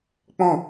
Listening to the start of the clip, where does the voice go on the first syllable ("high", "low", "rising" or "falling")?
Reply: falling